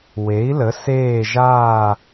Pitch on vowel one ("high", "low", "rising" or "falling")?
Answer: rising